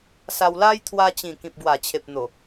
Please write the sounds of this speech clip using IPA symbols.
s a˧ w l a˦ j t̪ʰ w a˧ t͡ɕ ĩ˨˩ k ĩ˨ p̚ ɡ w a˨˩ t͡ɕʰ e˨ p̚ n̪ o˨˩

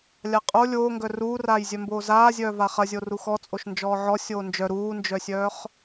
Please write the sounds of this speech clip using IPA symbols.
lʲ a qʼ o lʲ oː ŋ ɡ œ r uː r aː j zʲ œ m b oː z aː zʲ œː v a χ ɐ zʲ o r u x ɔ t͡sʼ o ʃ n d͡ʒ ɔː ʕ ɔ sʲ oː n d͡ʒ œ ɾ uː n d͡ʒ œ sʲ œː χ

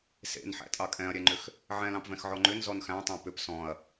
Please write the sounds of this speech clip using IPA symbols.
s ḛ n ħ æ̰ tʼ ɑ kʼ ɛ̃ ɐ̯ ɾʲ ɛ ŋ͡ǃ ʏ x | ʕ ɛ̃ l ɑ̃ p v ɛ̃ x ʕ ɔ ŋ͡ǃ ʏ n z ɔ n x æ̃ tˤ æ̃ p ʏ p s ɔ̃ ɐ̯

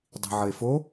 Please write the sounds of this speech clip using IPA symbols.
dˤ i̤ ʕ ə e̯ f o

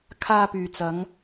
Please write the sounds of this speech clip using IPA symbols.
kʰ aː˧ p yː˨ t͡s ɐ˨˧ ŋ

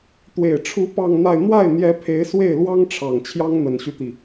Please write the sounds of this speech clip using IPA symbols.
t̪ w e˨˩ ɪ̯ ʈ͡ʂʰ u˧˥ p ɑ˥˧ ŋ n̪ a˥˧ ɪ̯ n̪ w a˥˩ ɪ̯ n̪ j ɛ˧˥ pʰ e˧˥ ɪ̯ s w e˥˩ ɪ̯ l w ɑ˥ ŋ ʈ͡ʂʰ ɑ˨˩ ŋ t͡ɕʰ j ɑ˥ ŋ n̪ ə˨˩ n ɕ y˦ t̪ i˩

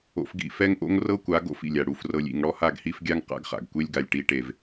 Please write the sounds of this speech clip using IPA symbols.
o̰˦ f ɡ ḭ˦ f ɛ˦ ŋ ʔ o̰˦ ŋ r ɤ˦ kʷ a˨˦ ɡ o̰˦ f ḭ˨ lʲ a˨ ɽ u˨ f r ɤ˨ lʲ ḭ˨ ŋ ɽ ɔ˦ h a˦˨ ɡ h i˦ f ɡʲ a˦ ŋ q a̰˦ ɡ χ a̰˨ ɡ kʷ e˦ lʲ ɡ a˨ lʲ ʈ i˨ ʈ e˨ v

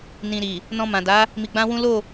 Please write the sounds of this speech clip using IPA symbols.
n ĩ˧ ɾ i˨ | n ɔ̃˧ m ã˨ d a˨˦ | m i˧ ɡ͡b ã˦ w ũ˦ l o˦˨

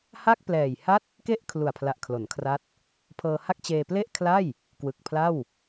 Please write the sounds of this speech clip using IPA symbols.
h a˥˩ k̚ p l ɛː˨˩ j h a˥˩ t̚ | k e˥˩ ʔ kʰ l u˨˩ a̯ pʰ l a˨˩ ʔ kʰ l o˩˦ n kʰ r a˦˥ t̚ | pʰ ɤː˧ h a˥˩ k̚ t͡ɕ eː˧ p l e˥˩ ʔ kʰ l a˥˩ j | k w ɯ˨˩ k̚ pʰ l a˥˩ w

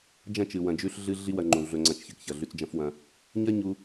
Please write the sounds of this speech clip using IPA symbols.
d͡ʒ ɐ̃˦˨ t͡ʃ ɨ˨ w ɐ̃˧ d͡ʒ ʉ˦ ɬ ɮ ɨ˦ ɮ i˦ w ɐ˧ ŋ͡ǃ ũ˨ ɮ ɵ˨ ŋ͡ǀ ɐ̃˨ t͡ʃ ç ɨ˨ k ç ɐ˨ ɮ ʉ˧ t͡s d͡ʒ ɐ̃˦ f w ɐ̃˧ | ɲ ɐ˦ ɲ u˧

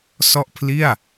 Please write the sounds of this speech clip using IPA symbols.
s ɔ˥˩ ʔ pʰ l i˥˩ a̯

